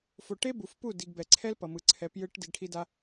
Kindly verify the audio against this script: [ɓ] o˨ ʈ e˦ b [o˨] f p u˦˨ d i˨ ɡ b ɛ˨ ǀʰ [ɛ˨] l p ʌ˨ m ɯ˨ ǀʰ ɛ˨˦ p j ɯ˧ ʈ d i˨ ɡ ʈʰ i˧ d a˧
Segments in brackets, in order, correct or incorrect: incorrect: f, incorrect: u˨, incorrect: ɛ˦

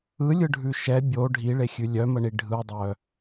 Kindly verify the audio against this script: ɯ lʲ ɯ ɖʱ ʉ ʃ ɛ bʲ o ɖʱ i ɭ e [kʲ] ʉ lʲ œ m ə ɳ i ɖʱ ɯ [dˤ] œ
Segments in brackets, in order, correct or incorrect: incorrect: xʲ, correct

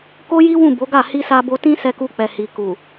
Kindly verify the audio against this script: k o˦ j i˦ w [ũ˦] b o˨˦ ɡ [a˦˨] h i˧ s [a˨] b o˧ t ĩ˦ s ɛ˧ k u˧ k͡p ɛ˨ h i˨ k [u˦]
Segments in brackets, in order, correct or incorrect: incorrect: ũ˦˨, correct, incorrect: a˧, incorrect: u˨

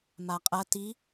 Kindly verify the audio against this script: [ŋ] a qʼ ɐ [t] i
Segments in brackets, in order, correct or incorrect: incorrect: m, correct

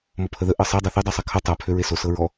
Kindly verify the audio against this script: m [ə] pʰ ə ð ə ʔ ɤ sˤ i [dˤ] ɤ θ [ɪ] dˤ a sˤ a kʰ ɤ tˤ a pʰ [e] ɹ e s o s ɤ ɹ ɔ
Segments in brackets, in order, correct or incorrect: incorrect: ɔ, correct, incorrect: i, incorrect: ø

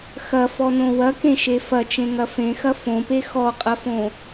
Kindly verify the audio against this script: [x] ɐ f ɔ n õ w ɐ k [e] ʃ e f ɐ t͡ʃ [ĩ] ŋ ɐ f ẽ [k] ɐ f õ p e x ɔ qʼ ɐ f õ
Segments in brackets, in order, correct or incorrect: correct, incorrect: ẽ, incorrect: ẽ, incorrect: x

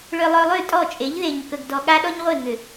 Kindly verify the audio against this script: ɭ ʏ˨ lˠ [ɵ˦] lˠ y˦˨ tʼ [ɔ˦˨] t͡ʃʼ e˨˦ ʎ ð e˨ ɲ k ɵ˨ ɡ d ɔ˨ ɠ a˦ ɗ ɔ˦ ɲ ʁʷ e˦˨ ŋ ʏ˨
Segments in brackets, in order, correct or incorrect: incorrect: ɵ˨, correct

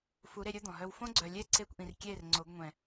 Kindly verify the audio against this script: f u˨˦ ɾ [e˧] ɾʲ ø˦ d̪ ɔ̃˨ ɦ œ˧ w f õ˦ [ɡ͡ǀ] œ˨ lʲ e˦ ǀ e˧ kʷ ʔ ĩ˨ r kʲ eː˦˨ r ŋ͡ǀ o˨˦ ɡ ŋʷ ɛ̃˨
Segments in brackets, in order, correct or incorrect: correct, correct

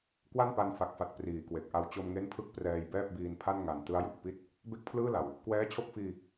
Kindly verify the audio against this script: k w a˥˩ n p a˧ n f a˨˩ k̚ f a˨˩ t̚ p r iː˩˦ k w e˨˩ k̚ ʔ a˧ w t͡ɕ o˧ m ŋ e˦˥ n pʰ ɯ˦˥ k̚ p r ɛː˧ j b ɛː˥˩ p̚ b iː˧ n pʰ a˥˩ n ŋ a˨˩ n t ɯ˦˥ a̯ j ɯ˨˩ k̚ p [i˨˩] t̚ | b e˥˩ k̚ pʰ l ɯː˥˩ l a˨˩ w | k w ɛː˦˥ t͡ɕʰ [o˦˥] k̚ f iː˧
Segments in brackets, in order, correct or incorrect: incorrect: i˥˩, correct

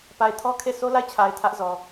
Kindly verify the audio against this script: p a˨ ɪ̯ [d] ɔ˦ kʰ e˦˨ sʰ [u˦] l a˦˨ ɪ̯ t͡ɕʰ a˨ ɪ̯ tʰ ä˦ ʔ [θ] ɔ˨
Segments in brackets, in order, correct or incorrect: incorrect: tʰ, incorrect: o˦, incorrect: z

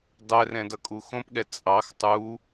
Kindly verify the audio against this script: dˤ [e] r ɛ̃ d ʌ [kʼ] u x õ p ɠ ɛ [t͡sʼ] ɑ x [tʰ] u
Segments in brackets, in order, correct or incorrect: incorrect: ɛ, correct, correct, incorrect: tˤ

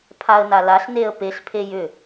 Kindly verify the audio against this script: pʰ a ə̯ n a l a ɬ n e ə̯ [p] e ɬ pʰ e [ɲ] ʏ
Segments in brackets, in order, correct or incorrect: correct, incorrect: j

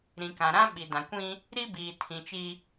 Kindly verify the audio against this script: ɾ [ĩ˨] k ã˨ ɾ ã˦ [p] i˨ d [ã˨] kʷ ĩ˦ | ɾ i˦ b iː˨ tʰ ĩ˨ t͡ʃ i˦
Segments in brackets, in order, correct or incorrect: correct, incorrect: ɓ, correct

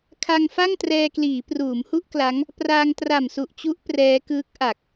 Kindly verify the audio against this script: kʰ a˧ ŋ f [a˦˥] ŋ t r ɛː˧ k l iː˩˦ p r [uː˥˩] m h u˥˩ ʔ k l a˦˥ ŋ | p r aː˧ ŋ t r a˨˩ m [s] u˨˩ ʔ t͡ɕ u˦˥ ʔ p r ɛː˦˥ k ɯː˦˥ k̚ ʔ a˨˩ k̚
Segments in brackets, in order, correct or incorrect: incorrect: a˥˩, incorrect: uː˩˦, correct

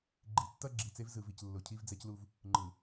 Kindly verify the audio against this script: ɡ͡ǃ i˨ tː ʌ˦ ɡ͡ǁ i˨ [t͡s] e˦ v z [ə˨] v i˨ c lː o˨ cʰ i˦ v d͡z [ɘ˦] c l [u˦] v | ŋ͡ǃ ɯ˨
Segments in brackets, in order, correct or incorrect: correct, incorrect: ɯ˨, incorrect: ɛ˦, correct

